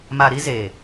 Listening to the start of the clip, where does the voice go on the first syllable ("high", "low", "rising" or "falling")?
low